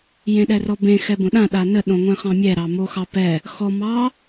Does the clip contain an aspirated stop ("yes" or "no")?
no